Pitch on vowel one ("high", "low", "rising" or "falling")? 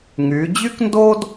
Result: rising